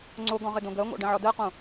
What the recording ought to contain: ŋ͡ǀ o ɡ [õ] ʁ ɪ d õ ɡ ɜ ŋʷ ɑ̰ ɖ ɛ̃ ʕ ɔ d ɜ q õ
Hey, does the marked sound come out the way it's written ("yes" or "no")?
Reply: no